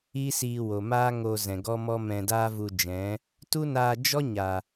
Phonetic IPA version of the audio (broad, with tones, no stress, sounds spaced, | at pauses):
iː˦ s iː˧ w o˨ m aː˦ ŋ o˧ z ɛ̃˨ ɡ ɔ˦ m ɔ˦ m ɛ̃˧ d aː˦ v u˧ d͡ʒ ɛ̃˨˦ | t u˦ n aː˧ d͡ʒ ɔ˦ ɲ a˨